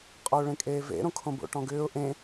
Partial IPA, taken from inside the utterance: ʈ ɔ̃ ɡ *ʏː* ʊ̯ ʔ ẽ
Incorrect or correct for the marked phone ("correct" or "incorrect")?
correct